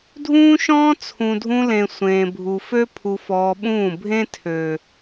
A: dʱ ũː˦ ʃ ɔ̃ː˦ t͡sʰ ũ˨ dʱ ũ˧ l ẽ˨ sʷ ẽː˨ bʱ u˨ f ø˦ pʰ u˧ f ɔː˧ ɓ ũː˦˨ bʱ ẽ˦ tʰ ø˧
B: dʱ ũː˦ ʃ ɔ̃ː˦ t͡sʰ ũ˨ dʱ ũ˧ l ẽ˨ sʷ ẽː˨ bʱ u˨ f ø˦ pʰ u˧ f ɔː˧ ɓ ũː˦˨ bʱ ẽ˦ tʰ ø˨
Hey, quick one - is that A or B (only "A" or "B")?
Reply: B